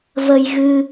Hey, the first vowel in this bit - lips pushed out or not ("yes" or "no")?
no